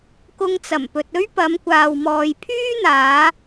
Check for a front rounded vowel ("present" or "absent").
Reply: present